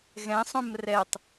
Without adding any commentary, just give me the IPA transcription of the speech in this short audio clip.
ɣ ɛ̃ sˤ õ m r ɛ tˤ

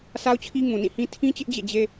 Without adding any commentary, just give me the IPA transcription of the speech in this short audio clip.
s a˦ ʊ̯ t͡ɕʰ i˦ ŋ ũ˨ n ĩ˦˨ h ĩ˦ tʰ ĩ˦ t͡ɕ ɪ˦ ʔ d͡ʑ ḛ˦˨ d͡ʑ e˦

